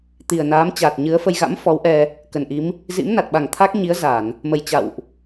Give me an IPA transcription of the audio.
t̪ i˨˩ ə̯ n aː˨˦ m t͡ɕ aː˨˩ t̚ ɲ ɨ˨˦ ə̯ f ə˧ j ɣ a̰˧˥ m f ɔ˨˦ w ʔ ɛ˧ | k ə˨˩ n ʔ i˨˦ m | z ḭ˧˥ m n a˨˩ t̚ ɓ a˨˩ ŋ t̪ʰ a˦˥ k̚ ɲ i˨˦ ə̯ z a˧˩˨ n | m ə˨˩ j t͡ɕ a̰˧˨ w ʔ

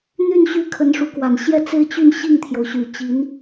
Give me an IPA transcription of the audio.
n̪ y˥˧ n ɕ y˥˩ kʰ ə˧˥ n ʂ u˧˥ k w a˨˩ n ɕ j ɛ˥˧ t͡s e˥˧ ɪ̯ t͡ɕ y˥˧ n ɕ i˥˩ ŋ t̪ʰ j o˩ ʊ̯ ɕ y˨˩ t͡ɕ i˧˥ n

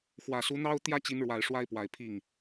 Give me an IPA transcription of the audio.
x w ä˨˩ s u˧˥ n̪ ɑ˥ ʊ̯ t̪ j ä˥˩ t͡ɕ i˧˥ n ɻ w a˨˩ ɪ̯ ʂ w a˥ ɪ̯ p w a˨˩ ɪ̯ pʰ i˥˩ ŋ

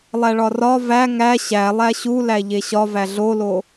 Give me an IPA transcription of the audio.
lˠ æ ɭ ɒ r ɒ v æ ŋ æ ɕ æ lˠ æ ɕ u l æ ʎ e ɕ ɒ v æ ɮ o l o

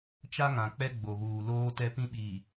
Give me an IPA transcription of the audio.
t͡ʃ a˦ ŋ ã˨ k͡p ɛ˦ ɡ͡b o˨ ɣ uː˨ l oː˦ t ɛ˦ p ĩ˦ ɓ iː˨

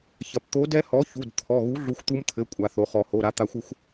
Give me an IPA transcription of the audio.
ç ɐ˩ p t̪ o˨˥ d ɛ˦˥ h ɔ˨˥ ç u˩˧˩ d t̪ʰ ɔ˩˧˩ ɣ u˨˥ ɮ u˨˥ xʷ t̪ u˦˥ m t̪ʰ ɘ˩˧˩ kʷʼ a˩ θ o˩ χ ɔ˩ h o˩˧˩ ɾ a˨˥ t̪ a˨˥ xʷ ɘ˦˥ xʷ

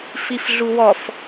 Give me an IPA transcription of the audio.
f i f ɮ u w ɔ f

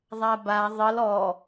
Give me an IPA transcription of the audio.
ðˤ a b a ðˤ ɘ l ɔ

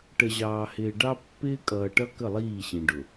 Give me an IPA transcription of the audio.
ʈ ə˨ ʑ ɑː˨ h ɪː˨ ɖ ɑ˦ pː ɪː˦ kʼ ʌː˨ ʈ ʌ˦ k ə˦˨ lˠ iː˦˨ ɕ ĩ˨ ɖ ʊ˨

